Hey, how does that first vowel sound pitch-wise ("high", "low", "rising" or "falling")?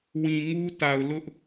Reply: low